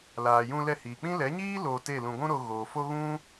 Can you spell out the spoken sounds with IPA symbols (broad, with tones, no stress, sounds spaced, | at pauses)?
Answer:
l aː˨ j ũ˧ l ɛ˧ h iː˨ k͡p ĩ˦ l ɛ˨˦ ɲ iː˦ l oː˧ t e˦˨ l ũ˧ ɡʷ ũ˦ ɾ o˧ ɣ oː˨ f o˦ ɣ ũ˦